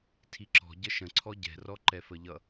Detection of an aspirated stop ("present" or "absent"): present